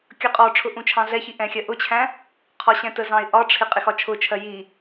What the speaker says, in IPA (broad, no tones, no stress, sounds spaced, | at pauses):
kʲ ʌ qʼ ɔ ʈ͡ʂʰ ʊ ʔ ũ t͡ʃʰ ɑ̃ ɮ ɛ ç i ʔ ɛ̃ xʲ ɜ ʔ ʊ t͡ɕʰ æ̃ | qʰ ɒ ɕ ɛ̃ t ə z ɑ̃ ɪ̯ ʔ ɒ ʈ͡ʂʰ ɪ qʼ ɪ x ɒ t͡ʃʰ ʊ t͡ʃʰ ɜ j i